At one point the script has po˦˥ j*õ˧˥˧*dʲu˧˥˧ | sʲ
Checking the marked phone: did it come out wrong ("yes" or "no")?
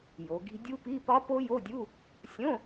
yes